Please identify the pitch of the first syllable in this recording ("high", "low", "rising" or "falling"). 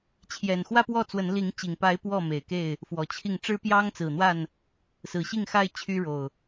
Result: low